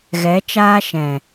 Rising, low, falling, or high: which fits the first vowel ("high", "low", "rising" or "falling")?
rising